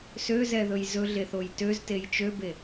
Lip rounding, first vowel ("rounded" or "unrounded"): rounded